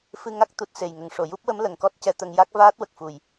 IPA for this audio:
fɨ˧ŋa˦˥k̚ t̪u˨˩t̚ se˨˩j ŋə˨˩˨ŋʂo˨˩˨ju˦˥p̚wə˧˥m lə˨˩˨ŋkɔ˦˥t̚cɛ˧t̪ə˧ŋ ja˦˥k̚vaː˦˥t̚ wə˨˩k̚fu˨˩j

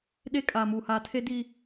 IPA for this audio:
ɗeː˦kʼaː˨muː˨haː˨ tʰe˦ di˨

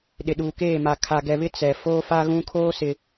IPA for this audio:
ɗɪ˨ɗuː˨keː˦˨ma˨ kʰa˨ɡɛ˨βɪ˦ t͡sɛ˨ foː˦fa˦ ɣũ˦kʰoː˦sɪ˨

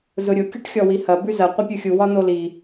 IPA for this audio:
zʊɾʲʊ kʲuʈxʲɔwihɐ bʉzɐ qʷɐpʲuxʲu wɒn̪oli

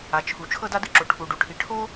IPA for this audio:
a˩t͡ʃʰu˩ t͡ʃʰɤ˧da˧dɯ˧ǁo˩ ʈʰu˩ɖu˩ ʈʰi˩ʈʰo˥

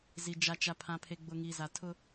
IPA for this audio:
zi˨ d͡ʒa˨t͡ʃa˨ pʰã˨ pʰe˨ɡ͡bʊ˨ŋiː˨ za˨tʰʊ˦

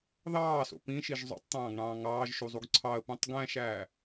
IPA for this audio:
ðɑːso̰ pĩʃiʒ zˤo̰tˤt̪ɑ̃ːɡɳɑ̃ː ŋɑːʒʃuzˤuɡ ǀʰɑə̯pũtˤ ɡæ̃ʃæː

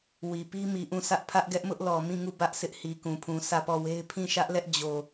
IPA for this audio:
wi˨ pi˦mi˨ʔũ˦˨sä˦ʔ pʰä˦ʔɡɛ˦ʔmʊ˦ʔlɔ˨ mĩ˦˨ŋu˦˨ bä˦ʔsʰɪ˦ʔ hi˨kũ˨pʰũ˨ sʰä˦˨pɔ˦˨we˦ɪ̯ pʰĩ˦˨ʃä˦ʔlɛ˦ʔ d͡ʑo˨

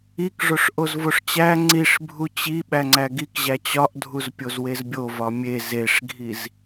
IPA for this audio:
ikʐoʂʔoz voʂt͡ɕæ ŋ͡ǀiʂ bʱut͡ɕi ɓæŋ͡ǀæɡikʑæ t͡ɕɒʔdʱuz pʲozwezbʲo vɒmʲe zeʂɡʱiz

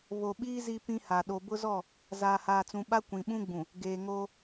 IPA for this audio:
βo˨ɓiː˦ zi˦pĩ˦ha˨ ɗo˨bʊ˦zɔ˦˨ | zaː˨haː˨t͡sũ˨ɓa˦ kʷĩ˨ɓũ˦ɡ͡bũ˨ | ɡeː˨ŋoː˦

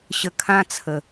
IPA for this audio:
ɕə˨˩kʰã˧ t͡sʰə˨˩

